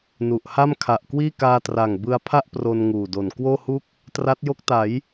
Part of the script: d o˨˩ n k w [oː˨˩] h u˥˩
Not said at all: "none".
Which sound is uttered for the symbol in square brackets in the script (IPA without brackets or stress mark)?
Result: oː˥˩